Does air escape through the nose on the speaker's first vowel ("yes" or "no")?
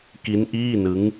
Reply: no